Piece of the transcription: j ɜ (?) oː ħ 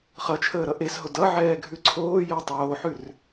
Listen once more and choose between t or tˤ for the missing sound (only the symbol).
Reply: tˤ